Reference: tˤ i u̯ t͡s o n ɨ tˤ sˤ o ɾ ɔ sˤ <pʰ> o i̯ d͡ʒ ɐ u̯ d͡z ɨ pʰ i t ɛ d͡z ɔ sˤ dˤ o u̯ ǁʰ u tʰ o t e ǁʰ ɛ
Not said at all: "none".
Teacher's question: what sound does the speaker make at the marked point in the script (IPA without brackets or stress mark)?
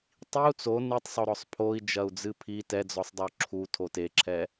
pʰ